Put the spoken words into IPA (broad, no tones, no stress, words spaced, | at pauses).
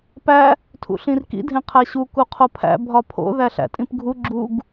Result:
pæ | tʰṵɬĩrkḭ dʱẽqʰæɕu kuqʰopʰæ̰ bʱɒpʰo̰ ðæɬæ̰tʼĩpɡʱu ɡ͡ǁuɡ